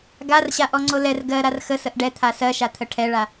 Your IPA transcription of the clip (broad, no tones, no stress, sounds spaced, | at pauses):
ɡ a r ɕ a ʔ ɔ ŋ͡ǀ o l ɛ r ɡ ɜ ɾ a r x ə s ə ʔ ɖ ɛ t̪ʰ a s ɜ ʃ a t̪ʰ ə ʈʰ ɛ ɭ a